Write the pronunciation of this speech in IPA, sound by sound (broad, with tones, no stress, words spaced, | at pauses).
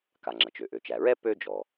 ka˩ŋ͡ǁɐ˩t͡ʃø˩ ʔø˩t͡ʃæ˩ɹɛ˥ pø˥d͡ʒɔ˩